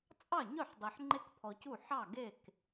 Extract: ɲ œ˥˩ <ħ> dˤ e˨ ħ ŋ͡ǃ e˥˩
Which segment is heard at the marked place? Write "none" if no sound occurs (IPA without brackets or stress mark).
ħ